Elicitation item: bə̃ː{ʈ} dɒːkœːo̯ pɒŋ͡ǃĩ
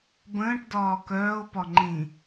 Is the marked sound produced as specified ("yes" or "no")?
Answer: yes